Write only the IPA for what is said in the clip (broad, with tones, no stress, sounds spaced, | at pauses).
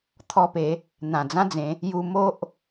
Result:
t̪ʰ ɔ˧ p e˨˦ | n̪ ã˨˩ d͡z ã˦ d͡z ẽ˨˦ | j u˧ m o˦ ʔ